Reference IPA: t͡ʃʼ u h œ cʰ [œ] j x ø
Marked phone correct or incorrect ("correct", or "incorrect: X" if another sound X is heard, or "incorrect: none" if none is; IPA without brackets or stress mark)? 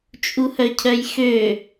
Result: correct